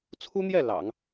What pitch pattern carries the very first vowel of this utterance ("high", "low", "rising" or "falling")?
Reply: high